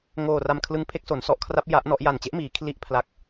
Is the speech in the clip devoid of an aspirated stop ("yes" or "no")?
no